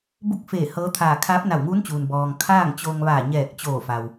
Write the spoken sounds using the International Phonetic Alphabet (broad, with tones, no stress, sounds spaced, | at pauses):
b u˥˨ k̚ f eː˧˩ h ɤː˧˥ t̪ʰ aː˧˩ kʰ aː˧˥ p̚ n a˧˩ w ŋ uː˧˥ n t͡ɕ uː˩ n b ɔː˩ ŋ kʰ aː˥˨ ŋ t͡ɕ oː˧ ŋ ʋ aː˧˩ ɲ ɛː˧˩ k̚ t͡ɕ oː˧˩ f a˩ w